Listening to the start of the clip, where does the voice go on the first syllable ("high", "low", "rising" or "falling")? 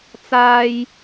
high